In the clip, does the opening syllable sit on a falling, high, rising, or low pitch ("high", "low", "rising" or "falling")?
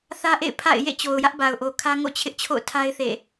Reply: high